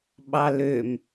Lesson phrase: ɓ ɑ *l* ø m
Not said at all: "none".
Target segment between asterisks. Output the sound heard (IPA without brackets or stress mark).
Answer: l